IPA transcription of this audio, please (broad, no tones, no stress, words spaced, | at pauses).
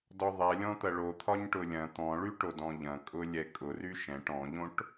dɔðˤɛlʲɔ̃t̪ɐ ɭot̪ʰɒɲ ʈʊlʲɐ̃ t̪ɔ̃ɭyʈod ɔ̃ʎɐ̃kʼʊ lʲɛkʼʊr yʃɛ̃ʈ ɔ̃ʎõʈ